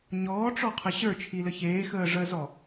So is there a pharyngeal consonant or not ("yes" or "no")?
no